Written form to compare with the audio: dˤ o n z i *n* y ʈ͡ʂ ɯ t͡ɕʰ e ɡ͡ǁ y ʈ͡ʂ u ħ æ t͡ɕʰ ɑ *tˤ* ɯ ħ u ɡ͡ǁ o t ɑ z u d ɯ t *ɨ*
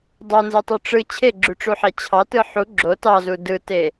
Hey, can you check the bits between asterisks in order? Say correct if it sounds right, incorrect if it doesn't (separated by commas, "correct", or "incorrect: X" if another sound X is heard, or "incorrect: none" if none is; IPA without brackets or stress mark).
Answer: incorrect: tˤ, incorrect: t, incorrect: e